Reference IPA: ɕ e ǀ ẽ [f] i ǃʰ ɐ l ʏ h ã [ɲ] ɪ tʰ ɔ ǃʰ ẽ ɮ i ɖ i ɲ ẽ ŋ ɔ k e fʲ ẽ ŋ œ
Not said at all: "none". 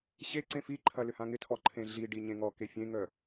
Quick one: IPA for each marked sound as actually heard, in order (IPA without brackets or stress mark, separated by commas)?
f, ŋ